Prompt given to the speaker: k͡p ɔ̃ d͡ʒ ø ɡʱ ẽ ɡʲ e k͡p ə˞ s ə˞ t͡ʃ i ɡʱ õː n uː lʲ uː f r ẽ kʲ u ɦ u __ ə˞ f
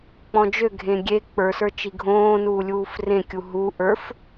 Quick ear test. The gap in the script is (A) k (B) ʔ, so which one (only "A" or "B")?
B